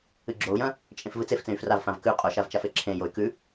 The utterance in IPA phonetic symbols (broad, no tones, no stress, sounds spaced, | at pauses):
ɨ ɡ͡ǁ o u̯ j ɐ̃ | t͡ʃʼ ẽ f v ɨ t͡s e f t͡s ẽ y̯ f r a v f ã v k ʉ qʼ o ʃ a v t͡ʃ a f e ǁʰ ẽ j o y̯ k ʉ